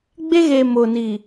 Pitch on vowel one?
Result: high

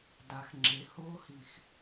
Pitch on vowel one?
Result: low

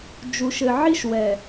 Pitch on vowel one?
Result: low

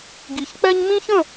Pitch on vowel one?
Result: low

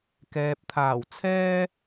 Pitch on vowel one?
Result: low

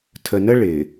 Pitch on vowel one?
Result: low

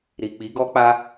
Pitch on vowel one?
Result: low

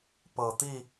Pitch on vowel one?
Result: low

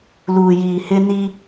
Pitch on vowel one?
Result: low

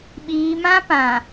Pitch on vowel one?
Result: low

